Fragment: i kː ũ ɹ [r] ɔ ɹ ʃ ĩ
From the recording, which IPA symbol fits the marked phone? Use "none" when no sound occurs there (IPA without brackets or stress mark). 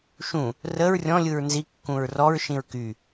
r